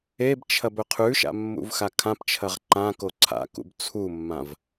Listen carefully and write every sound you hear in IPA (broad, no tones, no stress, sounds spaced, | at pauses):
e b t͡ʃʰ ɐ b ɵ qʰ ʉ ʃ a̰ mː ṵ v x a kʰ ã p t͡ʃʰ ɐ ʁ ǃ ã k o ǀʰ a̰ k ṵ b t͡sʰ u mː ã v